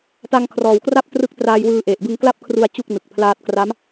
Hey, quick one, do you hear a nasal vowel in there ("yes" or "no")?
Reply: no